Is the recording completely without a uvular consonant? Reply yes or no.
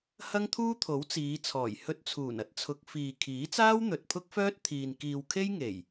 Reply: yes